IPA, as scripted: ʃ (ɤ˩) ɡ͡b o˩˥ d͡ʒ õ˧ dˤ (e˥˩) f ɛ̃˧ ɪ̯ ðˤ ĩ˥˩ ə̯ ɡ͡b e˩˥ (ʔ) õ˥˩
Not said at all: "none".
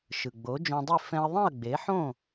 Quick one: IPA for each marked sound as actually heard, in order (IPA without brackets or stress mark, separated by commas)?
ɯ˩, i˥˩, ħ